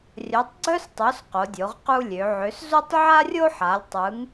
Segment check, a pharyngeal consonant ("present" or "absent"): present